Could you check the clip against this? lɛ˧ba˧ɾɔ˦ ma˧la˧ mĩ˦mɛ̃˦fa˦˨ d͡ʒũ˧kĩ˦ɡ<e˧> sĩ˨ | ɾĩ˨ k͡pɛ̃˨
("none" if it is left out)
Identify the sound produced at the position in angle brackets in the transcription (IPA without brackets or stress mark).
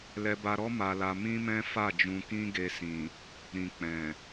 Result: e˧